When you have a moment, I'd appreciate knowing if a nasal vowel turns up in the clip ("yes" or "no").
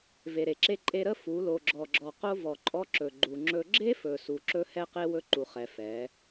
no